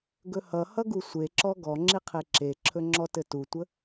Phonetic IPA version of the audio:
ɡ ɵ h ʌ h ʌ ɡ u sʷ e ǁ ɔ ɡ ɔ ŋ͡ǁ i qʰ e ǁ e ǁʰ ɵ ŋ͡ǁ ɔ t ɘ t u tʷ ə

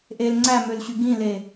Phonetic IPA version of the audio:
ʔ e l ŋ͡ǀ æ m ø l ɕ y ɡ ĩ l e

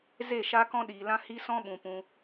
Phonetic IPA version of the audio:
z e˦˨ ʃ a˧ k ɔ̃˧ ɗ iː˨ l ã˧ h i˧ s ɔ̃˧ ɓ ũ˨ p ũ˧

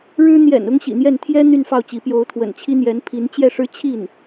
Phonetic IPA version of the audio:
ɻ ɻ̩˥ n̪ j ɛ̰˨˩ n ʊ˥ ŋ ɕ ḭ˨˩ n̪ j ɛ˥˩ n t̪ʰ j ɛ˥ n̪ y˥˧ n f ɑ˥˩ ʊ̯ t͡ɕ i˧˥ p j o˧˥ ʊ̯ t̪ʰ w ə̰˨˩ n t͡ɕʰ i˥ n̪ j ɛ˧˥ n pʰ i˧˥ n t͡ɕ j ɛ˥˩ ʂ ɻ̩˥ t͡ɕʰ i˥˩ n

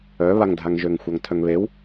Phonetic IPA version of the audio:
œ β a ŋ dʱ a ŋ ʒ ø ŋ xʷ a ŋ tʰ œ ŋ β e w

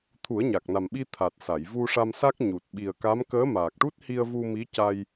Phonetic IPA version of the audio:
t̪ʰ u˨˩˦ ə̯ ɲ a˨˩ k̚ n a˨˩ m ɓ i˧ t̪ʰ a˨˩ t̚ s a˨˩˨ j v u˧ ʂ a˧ m s a˦˥ k̚ ɲ u˨˩ t̚ ɓ i˨˩ ə̯ k a˧˥ m k əː˧˥ m aː˨˩ k̚ ʈ u˦˥ t̚ h i˧ ə̯ v u˧ m i˧˥ c a˧ j

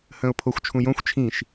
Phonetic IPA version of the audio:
h ə̃ː ʊ̯ pʰ o xʷ t͡ʃʰ ũ j õ xʷ t͡ʃʰ ĩ ʃ

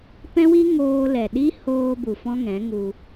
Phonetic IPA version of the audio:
p ɛ̃˦ w i˦ ŋ oː˧ l ɛ˨ ɗ i˦ h oː˧ b u˨ f ɔ̃˦ ŋ ɛ̃˨˦ ŋ u˧

